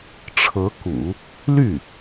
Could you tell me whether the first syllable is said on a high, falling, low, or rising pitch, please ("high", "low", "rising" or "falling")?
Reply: rising